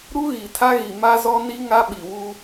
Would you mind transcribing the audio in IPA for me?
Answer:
ɾ u˦ ɣ i˨ tʰ a˦ ɣ i˨ m a˦ z ɔ˦ n i˦ ŋ a˦ ɓ i˨ w u˦

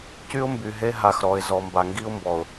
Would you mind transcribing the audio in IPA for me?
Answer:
c y˦ ʊ̯ m b y˨ ɦ e˦ ɦ a˨ x ɾ ɔ˨ ɪ̯ z ɔ˨ m b a˨ ŋ ɡ i˦ ʊ̯ m b ɔ˨ ʊ̯

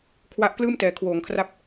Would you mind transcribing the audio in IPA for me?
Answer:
kʰ w a˦˥ ʔ k l ɯː˥˩ m t ɛː˩˦ kʰ w oː˩˦ ŋ kʰ r a˦˥ p̚

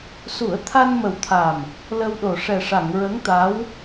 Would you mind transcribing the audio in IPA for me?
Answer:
s u˨˩˦ ə̯ t̪ʰ a˧ n m ə˨˩ w t̪ʰ a˨˩ m | l ə˧ w ɗ o˨˩ ʂ ɛ˨˩ ʂ a˨˩˨ ŋ ɹ ə˧˥ ŋ t̪ a˧˥ w

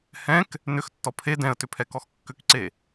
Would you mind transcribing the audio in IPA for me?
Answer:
h ɛ̃ k | n ʏ x tː ɔ pʰ e d ɛ̃ ə̯ t ʏ pʰ ɛ k ɔ x kː ʏ k ǀ e

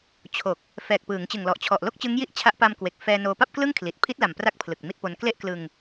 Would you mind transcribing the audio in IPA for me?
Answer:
t͡ɕʰ o˨˩ k̚ | f ɛː˨˩ k̚ p ɯː˩˦ ŋ t͡ɕ ɯ˨˩ ŋ l ɔ˨˩ ʔ t͡ɕʰ ɔ˨˩ ʔ l o˥˩ k̚ t͡ɕ ɯ˦˥ ŋ j i˥˩ ʔ t͡ɕʰ a˦˥ ʔ p a˧ m k w e˨˩ k̚ f ɛː˧ n oː˧ p a˥˩ p̚ k l ɯ˥˩ ŋ kʰ l i˨˩ t̚ pʰ i˦˥ t̚ l a˨˩ m p r a˥˩ k̚ pʰ l ɯ˨˩ k̚ m i˦˥ t̚ p o˧ n k l e˥˩ ʔ k l ɯ˧ ŋ

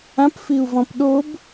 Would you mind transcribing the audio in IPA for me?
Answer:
ã p f i u̯ v ɔ̃ p ɗ o b

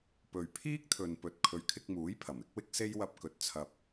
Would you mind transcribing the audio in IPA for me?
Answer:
p ɵ˨ ɥ pʰ iː˥ k̚ t̪ʰ ɵ˨ n p ɵ˨ t̚ kʰ ɵ˨˧ ɥ kʰ ɪ˧ k̚ m uː˨˥ j pʰ ɐ˨˩ m ɪ˨˥ k̚ w ɪ˥ k̚ s e˥ j w ɐ˧ p̚ k ɵ˧ t̚ t͡sʰ ɐ˧ p̚

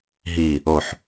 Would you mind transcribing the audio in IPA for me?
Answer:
ɦ i | o ħ

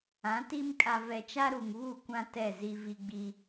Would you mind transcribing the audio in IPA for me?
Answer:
ã˨˦ t i˦ m kʼ a˨ v ɛ˨ t͡ʃ a˦ ɾ u˨ ŋ β u˦˨ kʷ ã˦ t ɛ˦˨ z i˦ v i˦ ɡ͡b i˦

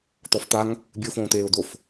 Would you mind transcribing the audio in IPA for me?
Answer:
t̪ ɔ f t̪ a ŋ | bʲ ɨ ʊ̯ f õː t̪ eː ʊ̯ d̪ o f

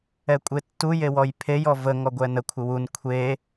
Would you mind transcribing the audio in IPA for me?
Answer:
ɛ kʷʼ e tː u j e w ɔ j pʰ e j ɔ v ə ŋ ɔ ɡʷ ɛ n ə kʷʰ ɪ w u n kʷʰ e

